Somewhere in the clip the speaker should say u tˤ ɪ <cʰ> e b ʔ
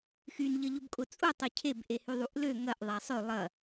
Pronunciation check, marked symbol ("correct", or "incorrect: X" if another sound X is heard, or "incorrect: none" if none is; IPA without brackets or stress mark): correct